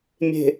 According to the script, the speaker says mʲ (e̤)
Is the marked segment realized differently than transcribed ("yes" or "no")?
no